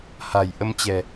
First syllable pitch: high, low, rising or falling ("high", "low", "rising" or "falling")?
low